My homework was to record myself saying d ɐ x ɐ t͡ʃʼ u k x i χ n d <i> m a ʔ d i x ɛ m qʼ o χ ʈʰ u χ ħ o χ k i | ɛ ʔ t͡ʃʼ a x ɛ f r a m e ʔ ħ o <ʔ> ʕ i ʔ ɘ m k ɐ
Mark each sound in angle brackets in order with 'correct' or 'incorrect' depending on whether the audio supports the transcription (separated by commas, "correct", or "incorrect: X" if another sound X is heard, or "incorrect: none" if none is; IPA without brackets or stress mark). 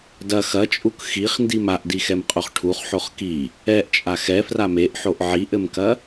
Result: correct, correct